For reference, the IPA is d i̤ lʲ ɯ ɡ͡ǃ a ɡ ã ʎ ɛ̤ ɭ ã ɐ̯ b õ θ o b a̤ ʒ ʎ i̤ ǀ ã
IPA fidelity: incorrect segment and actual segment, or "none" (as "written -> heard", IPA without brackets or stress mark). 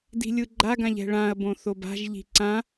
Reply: none